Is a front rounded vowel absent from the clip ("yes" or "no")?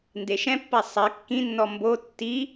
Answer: yes